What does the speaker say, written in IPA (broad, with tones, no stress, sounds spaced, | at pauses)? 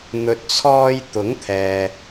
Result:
n̪ ɵ˨ t̚ t͡sʰ ɔː˧ j t̪ ʊ˨˥ ŋ t̪ʰ ɛː˨